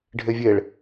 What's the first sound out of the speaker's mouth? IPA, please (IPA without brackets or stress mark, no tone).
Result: ɖʱ